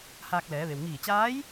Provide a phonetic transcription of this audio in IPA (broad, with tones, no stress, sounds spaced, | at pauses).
h aː˧ k̚ l ɛː˩˧ ʋ e˩ w ŋ iː˧˩ t͡ɕ aː˧˥ j